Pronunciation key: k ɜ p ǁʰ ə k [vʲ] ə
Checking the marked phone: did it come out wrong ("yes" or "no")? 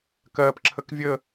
no